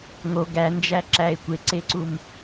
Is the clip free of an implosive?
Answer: yes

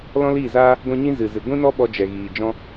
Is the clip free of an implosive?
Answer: no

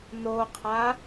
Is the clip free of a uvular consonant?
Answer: no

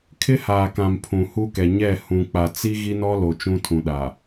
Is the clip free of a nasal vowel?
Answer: no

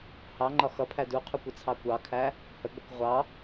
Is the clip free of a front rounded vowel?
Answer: yes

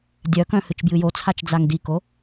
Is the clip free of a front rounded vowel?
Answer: no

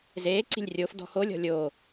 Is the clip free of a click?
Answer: no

